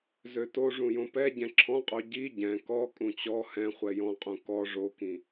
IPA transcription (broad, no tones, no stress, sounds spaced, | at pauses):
z ø t o ʐ ũ j õ p ɛ ɟ ɛ̃ ǁʰ ɔ̃ qʼ o ɟ i ɟ ɛ̃ k ɔ kʼ ũ t͡ɕ ɔ h ɛ̃ χʷ ɛ j ɔ̃ qʼ ũ k ɔ ʐ o k ĩ